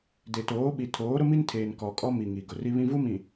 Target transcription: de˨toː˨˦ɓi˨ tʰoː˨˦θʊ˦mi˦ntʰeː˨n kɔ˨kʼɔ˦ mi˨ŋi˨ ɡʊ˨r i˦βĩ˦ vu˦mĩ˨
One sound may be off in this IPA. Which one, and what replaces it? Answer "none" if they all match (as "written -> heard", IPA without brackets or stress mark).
θ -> ɾ